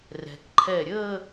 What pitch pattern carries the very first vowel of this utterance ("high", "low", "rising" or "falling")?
low